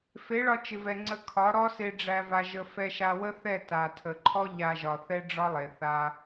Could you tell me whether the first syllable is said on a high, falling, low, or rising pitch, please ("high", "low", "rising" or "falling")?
rising